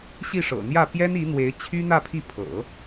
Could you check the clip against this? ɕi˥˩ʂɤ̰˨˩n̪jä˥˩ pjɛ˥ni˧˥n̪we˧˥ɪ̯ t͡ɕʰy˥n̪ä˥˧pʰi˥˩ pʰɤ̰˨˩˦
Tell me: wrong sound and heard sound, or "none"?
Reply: none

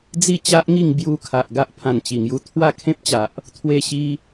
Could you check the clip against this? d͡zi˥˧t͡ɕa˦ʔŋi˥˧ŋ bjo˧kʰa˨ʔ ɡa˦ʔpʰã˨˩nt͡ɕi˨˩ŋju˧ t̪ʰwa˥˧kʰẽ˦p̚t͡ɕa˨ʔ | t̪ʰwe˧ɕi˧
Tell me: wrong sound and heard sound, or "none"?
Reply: o˧ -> u˧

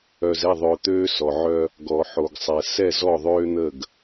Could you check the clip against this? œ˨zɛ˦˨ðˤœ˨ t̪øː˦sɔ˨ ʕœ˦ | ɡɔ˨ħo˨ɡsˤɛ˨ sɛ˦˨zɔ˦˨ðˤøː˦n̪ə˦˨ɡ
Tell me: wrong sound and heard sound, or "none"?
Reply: none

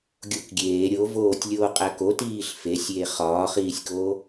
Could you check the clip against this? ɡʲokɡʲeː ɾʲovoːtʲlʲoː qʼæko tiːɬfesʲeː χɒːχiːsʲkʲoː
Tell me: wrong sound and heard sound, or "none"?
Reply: kʲ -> k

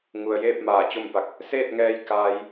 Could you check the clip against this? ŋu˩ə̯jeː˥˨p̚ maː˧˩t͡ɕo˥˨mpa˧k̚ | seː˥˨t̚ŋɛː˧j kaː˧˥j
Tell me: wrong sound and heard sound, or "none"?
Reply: none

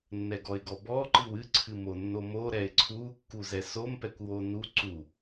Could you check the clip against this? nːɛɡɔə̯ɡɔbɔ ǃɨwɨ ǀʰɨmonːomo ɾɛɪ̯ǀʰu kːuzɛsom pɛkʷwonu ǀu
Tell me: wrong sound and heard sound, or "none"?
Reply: ə̯ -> ɪ̯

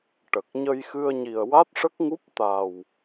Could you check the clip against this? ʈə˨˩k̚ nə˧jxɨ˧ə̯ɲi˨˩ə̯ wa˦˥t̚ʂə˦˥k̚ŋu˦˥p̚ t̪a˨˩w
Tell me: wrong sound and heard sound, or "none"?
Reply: n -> ɲ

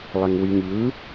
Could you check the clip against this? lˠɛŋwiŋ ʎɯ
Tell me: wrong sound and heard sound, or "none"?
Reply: none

